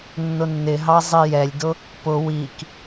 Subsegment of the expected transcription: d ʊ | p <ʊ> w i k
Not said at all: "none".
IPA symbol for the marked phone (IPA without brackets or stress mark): ʊ